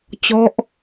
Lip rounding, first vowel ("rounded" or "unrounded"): rounded